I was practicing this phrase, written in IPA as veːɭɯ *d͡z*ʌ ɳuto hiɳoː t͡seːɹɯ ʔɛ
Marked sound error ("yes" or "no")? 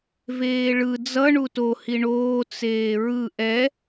no